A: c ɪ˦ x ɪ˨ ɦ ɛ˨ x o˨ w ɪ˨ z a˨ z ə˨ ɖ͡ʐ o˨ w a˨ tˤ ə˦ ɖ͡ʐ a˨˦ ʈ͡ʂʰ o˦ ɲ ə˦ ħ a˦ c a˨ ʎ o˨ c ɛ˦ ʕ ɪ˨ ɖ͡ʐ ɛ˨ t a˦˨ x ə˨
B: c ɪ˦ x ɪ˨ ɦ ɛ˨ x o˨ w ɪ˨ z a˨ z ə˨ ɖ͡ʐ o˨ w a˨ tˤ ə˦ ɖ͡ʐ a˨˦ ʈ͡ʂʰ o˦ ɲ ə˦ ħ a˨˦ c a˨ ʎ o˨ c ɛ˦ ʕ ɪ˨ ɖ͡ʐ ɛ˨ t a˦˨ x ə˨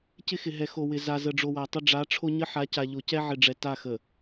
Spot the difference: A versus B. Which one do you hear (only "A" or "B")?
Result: B